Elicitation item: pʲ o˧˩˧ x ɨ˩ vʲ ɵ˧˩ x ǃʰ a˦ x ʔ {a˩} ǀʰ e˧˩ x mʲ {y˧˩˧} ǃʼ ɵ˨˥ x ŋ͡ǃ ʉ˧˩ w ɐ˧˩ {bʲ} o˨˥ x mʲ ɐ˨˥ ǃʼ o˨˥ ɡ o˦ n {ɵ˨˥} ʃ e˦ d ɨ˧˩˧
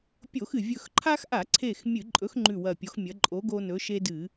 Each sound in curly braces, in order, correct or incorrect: incorrect, incorrect, incorrect, correct

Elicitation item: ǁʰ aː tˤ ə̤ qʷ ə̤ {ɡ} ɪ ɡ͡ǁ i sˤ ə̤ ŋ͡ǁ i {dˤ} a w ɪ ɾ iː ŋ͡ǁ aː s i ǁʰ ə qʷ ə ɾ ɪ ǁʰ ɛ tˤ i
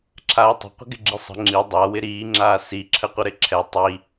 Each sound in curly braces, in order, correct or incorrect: correct, correct

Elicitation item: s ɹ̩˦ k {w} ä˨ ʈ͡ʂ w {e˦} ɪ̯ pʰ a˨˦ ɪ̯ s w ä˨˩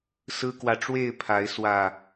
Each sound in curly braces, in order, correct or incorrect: correct, incorrect

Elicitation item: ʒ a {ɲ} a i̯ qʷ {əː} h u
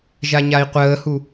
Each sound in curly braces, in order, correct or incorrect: correct, correct

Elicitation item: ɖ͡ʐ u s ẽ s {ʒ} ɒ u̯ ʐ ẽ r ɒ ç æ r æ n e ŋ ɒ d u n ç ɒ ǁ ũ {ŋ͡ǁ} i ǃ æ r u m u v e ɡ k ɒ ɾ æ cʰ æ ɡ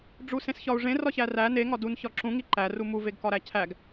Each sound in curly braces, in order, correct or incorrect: incorrect, incorrect

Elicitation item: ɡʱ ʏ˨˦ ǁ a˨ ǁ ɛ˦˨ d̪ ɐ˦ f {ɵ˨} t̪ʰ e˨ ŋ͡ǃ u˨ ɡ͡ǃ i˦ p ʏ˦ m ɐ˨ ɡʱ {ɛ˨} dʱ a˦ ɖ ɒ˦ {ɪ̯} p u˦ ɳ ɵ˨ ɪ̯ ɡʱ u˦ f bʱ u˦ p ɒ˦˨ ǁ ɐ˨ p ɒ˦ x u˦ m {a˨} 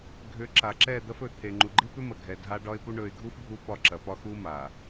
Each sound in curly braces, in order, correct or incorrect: correct, correct, correct, correct

